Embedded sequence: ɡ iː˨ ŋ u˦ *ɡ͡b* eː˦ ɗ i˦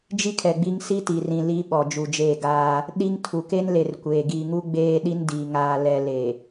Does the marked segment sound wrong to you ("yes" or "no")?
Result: no